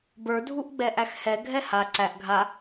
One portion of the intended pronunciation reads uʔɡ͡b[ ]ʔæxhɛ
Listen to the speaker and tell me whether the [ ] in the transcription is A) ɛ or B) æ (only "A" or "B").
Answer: A